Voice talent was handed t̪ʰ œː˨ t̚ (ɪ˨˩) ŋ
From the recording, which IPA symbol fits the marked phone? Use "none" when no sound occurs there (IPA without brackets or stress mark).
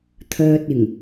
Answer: ɪ˨˩